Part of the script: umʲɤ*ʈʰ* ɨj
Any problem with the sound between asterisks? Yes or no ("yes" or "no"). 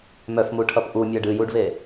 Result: yes